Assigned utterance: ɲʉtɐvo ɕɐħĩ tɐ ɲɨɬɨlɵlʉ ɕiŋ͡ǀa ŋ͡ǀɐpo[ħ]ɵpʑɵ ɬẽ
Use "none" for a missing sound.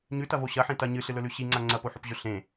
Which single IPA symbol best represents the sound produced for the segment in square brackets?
ħ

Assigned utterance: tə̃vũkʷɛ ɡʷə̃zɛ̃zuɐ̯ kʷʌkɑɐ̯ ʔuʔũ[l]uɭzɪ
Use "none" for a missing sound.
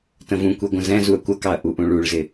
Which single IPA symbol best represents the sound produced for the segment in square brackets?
ɭ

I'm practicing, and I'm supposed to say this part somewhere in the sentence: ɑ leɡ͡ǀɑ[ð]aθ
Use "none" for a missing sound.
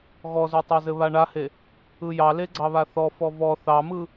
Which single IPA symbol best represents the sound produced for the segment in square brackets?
β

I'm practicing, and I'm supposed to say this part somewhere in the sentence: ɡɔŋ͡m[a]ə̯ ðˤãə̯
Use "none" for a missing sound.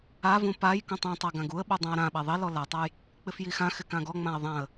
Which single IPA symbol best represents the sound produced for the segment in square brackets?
ã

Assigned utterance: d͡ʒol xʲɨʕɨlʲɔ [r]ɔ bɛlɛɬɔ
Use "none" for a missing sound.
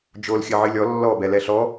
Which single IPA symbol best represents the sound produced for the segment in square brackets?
lː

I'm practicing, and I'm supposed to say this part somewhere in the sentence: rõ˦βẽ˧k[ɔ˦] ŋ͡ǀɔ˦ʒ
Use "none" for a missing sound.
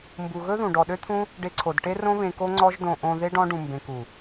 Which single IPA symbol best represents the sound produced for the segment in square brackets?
o˦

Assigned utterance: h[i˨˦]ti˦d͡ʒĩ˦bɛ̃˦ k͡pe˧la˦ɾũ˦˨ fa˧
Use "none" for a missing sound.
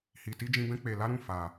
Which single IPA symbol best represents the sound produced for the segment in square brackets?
i˧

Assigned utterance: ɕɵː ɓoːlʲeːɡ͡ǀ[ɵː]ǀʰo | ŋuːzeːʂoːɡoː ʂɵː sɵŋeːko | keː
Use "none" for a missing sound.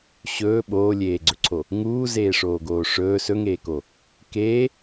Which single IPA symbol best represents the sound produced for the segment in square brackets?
ɵ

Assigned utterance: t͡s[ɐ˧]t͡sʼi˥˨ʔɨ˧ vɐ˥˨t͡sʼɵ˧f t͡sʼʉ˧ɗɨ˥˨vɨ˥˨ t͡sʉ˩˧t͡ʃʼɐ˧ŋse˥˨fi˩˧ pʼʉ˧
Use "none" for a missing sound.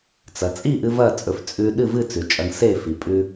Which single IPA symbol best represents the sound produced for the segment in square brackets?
ɐ˩˧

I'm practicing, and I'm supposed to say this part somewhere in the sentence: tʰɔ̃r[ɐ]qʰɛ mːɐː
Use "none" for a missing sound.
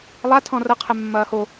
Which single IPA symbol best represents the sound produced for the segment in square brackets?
ɐ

